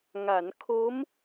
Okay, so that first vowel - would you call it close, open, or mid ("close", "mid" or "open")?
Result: open